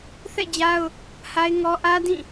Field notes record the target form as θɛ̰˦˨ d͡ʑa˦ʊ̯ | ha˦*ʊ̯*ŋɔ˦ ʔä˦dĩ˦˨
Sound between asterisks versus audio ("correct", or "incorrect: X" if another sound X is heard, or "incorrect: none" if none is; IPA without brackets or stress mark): incorrect: ɪ̯